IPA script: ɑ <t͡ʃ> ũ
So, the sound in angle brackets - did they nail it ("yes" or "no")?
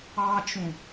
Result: yes